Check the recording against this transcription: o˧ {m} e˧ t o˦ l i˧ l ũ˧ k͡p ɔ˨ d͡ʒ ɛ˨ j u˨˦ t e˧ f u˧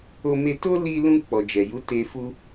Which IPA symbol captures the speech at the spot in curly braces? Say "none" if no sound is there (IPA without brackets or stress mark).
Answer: m